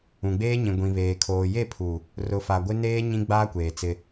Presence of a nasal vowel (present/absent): present